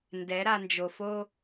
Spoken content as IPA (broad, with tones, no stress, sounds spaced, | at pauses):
n d ɛ˨˦ ɾ a˧ n d͡ʒ o˨ f o˦